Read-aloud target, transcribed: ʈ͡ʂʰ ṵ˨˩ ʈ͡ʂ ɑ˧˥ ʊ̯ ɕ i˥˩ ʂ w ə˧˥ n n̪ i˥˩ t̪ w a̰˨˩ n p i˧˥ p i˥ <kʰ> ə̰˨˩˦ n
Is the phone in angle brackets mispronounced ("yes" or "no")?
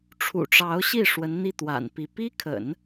no